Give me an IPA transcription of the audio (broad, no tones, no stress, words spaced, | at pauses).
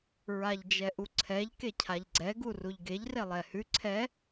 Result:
ɹaʎd͡ʒɛʔuǀʰɛʎ kecʰaʎɡ͡ǀɛ ɡuruʎɡeʎ relˠɛhʉ ǀʰɛ